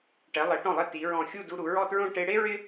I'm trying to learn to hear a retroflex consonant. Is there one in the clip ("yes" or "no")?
yes